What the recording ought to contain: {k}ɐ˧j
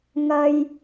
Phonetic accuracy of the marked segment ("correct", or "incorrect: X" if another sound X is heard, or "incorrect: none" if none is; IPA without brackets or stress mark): incorrect: ŋ